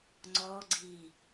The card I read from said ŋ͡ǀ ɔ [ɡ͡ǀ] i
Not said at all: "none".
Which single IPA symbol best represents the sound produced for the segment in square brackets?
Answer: ɡ͡ǀ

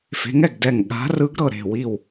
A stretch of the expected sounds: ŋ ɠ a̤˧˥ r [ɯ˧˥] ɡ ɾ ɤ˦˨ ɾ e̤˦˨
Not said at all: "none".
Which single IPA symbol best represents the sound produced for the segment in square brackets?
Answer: ɯ˧˥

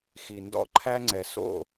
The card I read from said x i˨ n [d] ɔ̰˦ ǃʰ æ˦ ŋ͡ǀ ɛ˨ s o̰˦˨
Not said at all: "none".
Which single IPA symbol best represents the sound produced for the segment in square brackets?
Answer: d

